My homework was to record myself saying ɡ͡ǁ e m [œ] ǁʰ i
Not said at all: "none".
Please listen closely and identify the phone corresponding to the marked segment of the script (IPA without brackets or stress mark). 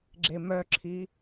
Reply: œ